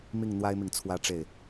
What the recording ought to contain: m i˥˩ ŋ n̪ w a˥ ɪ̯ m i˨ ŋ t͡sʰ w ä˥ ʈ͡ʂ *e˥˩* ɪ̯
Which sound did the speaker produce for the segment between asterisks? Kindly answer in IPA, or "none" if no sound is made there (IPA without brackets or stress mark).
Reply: e˥˩